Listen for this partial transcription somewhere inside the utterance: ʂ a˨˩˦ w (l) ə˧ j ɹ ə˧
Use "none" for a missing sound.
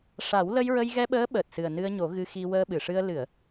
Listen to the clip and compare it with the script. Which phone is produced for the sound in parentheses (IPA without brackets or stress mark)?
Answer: l